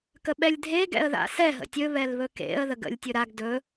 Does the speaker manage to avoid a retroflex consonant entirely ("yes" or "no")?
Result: yes